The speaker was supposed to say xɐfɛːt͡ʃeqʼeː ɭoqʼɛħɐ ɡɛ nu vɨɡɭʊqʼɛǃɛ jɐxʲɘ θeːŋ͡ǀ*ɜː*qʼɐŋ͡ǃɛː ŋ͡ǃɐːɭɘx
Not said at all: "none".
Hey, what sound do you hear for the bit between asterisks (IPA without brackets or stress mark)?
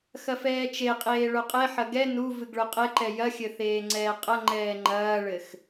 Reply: ɛː